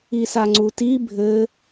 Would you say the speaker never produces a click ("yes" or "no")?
no